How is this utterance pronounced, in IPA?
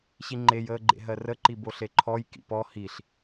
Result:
ɕiŋ͡ǃejəːɡ͡ǃḛ ɦɜrəǃi boɬeǃʰɔj kḭpɔ hiɬ

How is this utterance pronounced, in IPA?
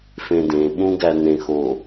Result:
fẽdẽ ɓũɡænẽxo

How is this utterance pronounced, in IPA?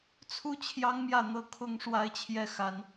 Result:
t͡sʰu˥t͡ɕʰjɑ˥ŋmjä˥˧ n̪ɤ˥˩ kʰʊ˥ŋ ʂwa˥ɪ̯t͡ɕʰjɛ˥ xa˥n

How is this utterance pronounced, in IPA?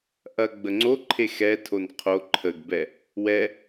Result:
ʔɐ ɡ͡bəŋ͡ǀoǃʰe xɛtʰon qʰo ǃʰəɡbɛ | wɛ

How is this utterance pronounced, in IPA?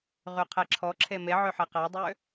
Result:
ʁyqʰɛǁʰɔ ǁʰeme ʕøħɛqadˤø

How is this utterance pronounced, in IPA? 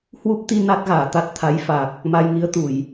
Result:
hwu˦˥p̚t̪i˧ na˦˥t̚ɣaː˧˩t̪a˦˥t̚ t̪ʰa˨˦jfa˨˩k̚ | ma˧jŋi˨˦ə̯t̪u˧˩˨j

